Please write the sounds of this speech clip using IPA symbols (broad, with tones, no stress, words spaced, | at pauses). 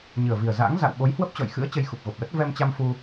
ɲɨ˨˩ə̯vi˨˩ə̯za̰ː˧˥ŋ za̰˧˨w ɓo˨˦jhwə˦˥p̚t͡ɕɔ̰˧˨j xɨ̰˧˥ə̯ t͡ɕə˧jxu˨˩p̚ɣo˨˩p̚lə˦˥t̚ vɛ˧mt͡ɕa˧mfu˧